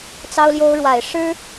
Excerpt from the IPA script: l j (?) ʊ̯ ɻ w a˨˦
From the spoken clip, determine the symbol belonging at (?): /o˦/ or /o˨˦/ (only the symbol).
o˦